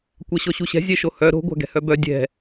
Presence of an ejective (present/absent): absent